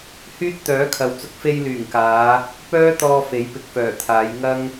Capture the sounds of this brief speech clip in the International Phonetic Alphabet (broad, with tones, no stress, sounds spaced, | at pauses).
h yː˥ t̚ t̪ œː˨˥ kʰ ɐ˨ w t͡s ʊ˧ k̚ f e˧ j l yː˨˩ ŋ k aː˨˧ | p œː˥ t̪ ɔː˧ f e˨˥ j p ɪ˨ k̚ f œː˨˩ t̪ʰ aː˨˧ j ŋ ɐ˥ ŋ